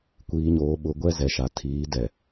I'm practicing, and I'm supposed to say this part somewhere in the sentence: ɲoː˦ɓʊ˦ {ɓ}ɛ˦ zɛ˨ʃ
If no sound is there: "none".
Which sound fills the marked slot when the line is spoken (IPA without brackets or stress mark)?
ɡʷ